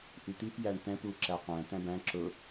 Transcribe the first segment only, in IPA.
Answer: ʔ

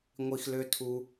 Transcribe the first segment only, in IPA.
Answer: ŋʷ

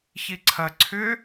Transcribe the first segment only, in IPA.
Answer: ç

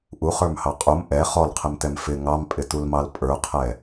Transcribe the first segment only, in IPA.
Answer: ʔ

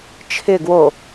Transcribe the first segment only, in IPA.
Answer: t͡ʃʰ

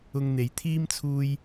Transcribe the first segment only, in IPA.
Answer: ʊ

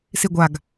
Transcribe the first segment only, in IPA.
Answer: s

